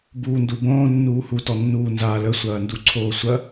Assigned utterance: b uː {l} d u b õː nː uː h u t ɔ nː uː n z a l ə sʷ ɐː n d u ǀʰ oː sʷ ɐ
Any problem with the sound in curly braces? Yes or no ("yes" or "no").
yes